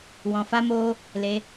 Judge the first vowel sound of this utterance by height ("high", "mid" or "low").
mid